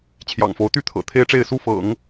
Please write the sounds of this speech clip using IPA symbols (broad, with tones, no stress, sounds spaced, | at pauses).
t͡ɕʰ j ɑ̰˨˩ ŋ f o˧˥ ʊ̯ t̪ y˥ t̪ʰ ɤ̰˨˩ t̪ʰ e˥ ɪ̯ ʈ͡ʂ e˥˧ ɪ̯ s u˥˩ f ɤ̰˨˩˦ ŋ